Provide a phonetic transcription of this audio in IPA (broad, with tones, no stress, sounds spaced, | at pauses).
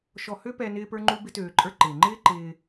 ʃ ɔ˧ h ø˥ p ɛ˧ n ɪː˥ p ə˞˥ ŋ͡ǃ u˥ b ɪ˥ t øː˧ ǃʼ ə˞˥ ǃ ɪː˩ ŋ͡ǃ ɪː˥ ǃ ɪː˧